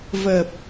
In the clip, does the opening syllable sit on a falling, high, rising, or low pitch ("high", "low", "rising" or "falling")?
low